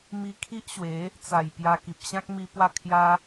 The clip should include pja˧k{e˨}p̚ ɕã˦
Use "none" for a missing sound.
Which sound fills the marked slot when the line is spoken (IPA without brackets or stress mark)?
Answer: i˨